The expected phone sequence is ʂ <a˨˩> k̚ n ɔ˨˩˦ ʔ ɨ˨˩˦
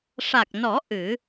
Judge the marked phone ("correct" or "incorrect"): correct